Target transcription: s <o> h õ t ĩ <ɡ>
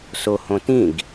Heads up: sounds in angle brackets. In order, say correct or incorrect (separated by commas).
correct, correct